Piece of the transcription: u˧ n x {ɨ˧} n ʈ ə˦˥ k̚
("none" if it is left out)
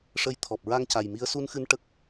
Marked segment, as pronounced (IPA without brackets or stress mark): ɨ˧